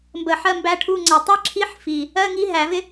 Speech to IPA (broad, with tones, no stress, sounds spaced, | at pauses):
m b ə˧˩˧ ħ ɜ˧˥˧ m b æ˧˥ ʈʰ u˧˥˧ ŋ͡ǀ æ˧˩˧ tˤ i˧˥ ǁʰ i˧˥ ħ f i˨˩ | ɜ˧˥˧ ŋ i˧˥ ɦ æ˧˩˧ v ɪ˥